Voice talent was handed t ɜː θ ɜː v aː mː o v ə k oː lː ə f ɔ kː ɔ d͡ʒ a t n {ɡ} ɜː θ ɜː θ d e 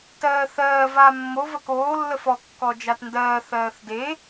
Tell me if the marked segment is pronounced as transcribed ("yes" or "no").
no